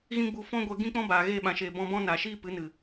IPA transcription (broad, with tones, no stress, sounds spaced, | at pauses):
ɣ ĩ˦ ɡ͡b u˧ f ɔ̃˦ ɡʷ ɛ˧ ɡ ĩ˦ k͡p ɔ̃˦ b aː˨ ɣ eː˧ ɓ ã˨ ʃ eː˨ b ɔ̃˧ b ɔ̃˦ n a˨ ʃ iː˦ p ɨ˨˦ n ɨ˨